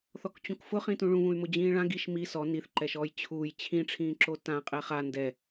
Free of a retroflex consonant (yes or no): no